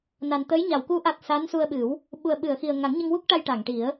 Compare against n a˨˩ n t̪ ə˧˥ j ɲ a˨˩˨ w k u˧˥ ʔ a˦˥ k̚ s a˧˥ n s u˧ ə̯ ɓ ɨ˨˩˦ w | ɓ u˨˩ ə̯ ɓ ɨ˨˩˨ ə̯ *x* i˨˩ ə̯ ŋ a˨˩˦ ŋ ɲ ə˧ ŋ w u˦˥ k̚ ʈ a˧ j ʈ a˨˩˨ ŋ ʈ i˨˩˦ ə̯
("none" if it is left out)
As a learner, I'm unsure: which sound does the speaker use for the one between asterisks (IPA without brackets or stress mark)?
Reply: x